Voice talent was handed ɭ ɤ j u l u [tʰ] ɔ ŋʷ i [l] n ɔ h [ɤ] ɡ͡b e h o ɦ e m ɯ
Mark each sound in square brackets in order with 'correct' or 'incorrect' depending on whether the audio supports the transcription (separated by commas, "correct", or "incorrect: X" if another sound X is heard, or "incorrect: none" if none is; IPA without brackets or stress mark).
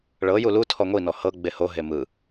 correct, incorrect: none, correct